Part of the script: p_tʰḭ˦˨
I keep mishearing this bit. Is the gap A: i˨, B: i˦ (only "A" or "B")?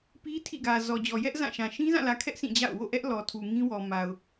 B